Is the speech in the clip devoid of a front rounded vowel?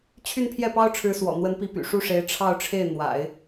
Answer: no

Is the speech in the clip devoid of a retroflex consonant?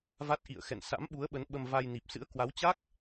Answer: yes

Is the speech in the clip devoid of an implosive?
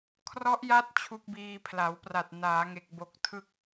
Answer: yes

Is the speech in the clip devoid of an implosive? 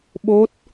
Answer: no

